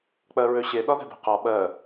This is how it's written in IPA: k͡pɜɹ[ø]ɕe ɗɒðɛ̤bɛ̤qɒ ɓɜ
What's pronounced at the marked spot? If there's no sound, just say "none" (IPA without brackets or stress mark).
ø